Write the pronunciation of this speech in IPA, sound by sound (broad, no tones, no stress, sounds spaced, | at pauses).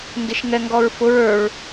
n d ɪ ʃ ŋ ɛ ŋ ɡ ɔ ɹ f ʊ ɹ ə˞ ɹ